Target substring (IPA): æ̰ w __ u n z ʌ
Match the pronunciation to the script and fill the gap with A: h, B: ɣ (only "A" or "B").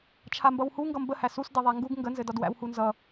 A